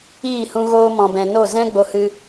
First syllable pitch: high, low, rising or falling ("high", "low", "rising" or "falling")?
falling